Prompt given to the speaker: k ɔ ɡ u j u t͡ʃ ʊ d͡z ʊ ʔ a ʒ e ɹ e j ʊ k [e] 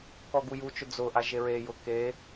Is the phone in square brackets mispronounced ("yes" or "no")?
no